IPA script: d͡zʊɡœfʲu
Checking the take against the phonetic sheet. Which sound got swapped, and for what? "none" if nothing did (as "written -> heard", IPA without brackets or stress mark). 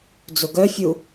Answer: none